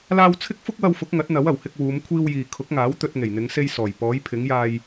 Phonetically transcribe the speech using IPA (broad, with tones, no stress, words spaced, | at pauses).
laː˧w t͡sʰɪ˥k̚fʊ˥k̚wɐ˧wfʊ˨˥k̚ ŋɐ˨˥t̚n̪ɐ˨˥wɐ˨˩whɪ˧k̚ wuː˨˧mkʷʰiː˧wjiː˨ kʰʊ˨˥k̚ŋaː˨˥w t̪ɵ˧t̚ ŋe˨˩jn̪ɪ˨˧ŋse˧j sɔː˨˩j pɔː˨˥jpʰɪ˨˥ŋjaː˧j